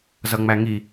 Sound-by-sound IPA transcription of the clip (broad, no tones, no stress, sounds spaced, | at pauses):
z ʌ ŋ͡m æ ŋ i